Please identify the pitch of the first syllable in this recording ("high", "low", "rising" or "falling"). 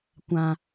high